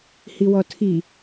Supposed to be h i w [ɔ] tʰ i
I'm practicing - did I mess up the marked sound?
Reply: no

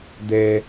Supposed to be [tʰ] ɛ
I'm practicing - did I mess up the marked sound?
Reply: yes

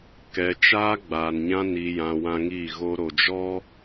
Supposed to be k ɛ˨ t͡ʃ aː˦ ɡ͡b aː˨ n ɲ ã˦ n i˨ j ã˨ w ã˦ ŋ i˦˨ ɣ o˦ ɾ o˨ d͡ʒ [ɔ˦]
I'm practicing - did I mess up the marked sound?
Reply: no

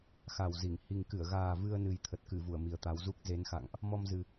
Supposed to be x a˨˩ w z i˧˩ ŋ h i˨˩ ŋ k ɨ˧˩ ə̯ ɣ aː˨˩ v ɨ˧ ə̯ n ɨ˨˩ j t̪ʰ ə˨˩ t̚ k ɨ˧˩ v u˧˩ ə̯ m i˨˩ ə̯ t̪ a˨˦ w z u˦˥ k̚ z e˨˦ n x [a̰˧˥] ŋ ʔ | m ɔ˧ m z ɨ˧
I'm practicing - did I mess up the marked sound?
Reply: yes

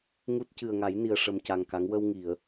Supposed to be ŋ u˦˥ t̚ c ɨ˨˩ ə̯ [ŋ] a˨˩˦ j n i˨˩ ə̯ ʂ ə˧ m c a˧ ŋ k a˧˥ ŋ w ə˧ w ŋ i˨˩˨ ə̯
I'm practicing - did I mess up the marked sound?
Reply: no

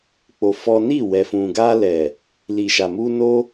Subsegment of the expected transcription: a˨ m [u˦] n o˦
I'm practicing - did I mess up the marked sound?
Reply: yes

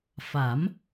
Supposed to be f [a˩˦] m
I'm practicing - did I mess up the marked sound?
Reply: no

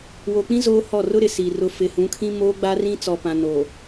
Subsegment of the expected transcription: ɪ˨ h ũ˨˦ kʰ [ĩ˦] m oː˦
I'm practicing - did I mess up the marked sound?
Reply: no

